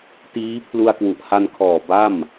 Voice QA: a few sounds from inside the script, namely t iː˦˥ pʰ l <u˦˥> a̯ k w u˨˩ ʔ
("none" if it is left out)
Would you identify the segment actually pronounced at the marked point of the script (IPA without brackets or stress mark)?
u˧